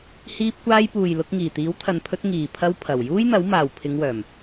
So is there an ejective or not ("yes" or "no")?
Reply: no